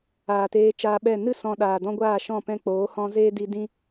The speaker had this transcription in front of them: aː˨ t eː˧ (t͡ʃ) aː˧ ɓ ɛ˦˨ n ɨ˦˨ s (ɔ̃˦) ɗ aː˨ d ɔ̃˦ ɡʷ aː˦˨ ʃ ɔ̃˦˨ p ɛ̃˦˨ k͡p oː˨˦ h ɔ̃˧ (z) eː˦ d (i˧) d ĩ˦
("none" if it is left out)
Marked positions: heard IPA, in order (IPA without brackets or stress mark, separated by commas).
t͡ʃ, ɔ̃˨, z, i˧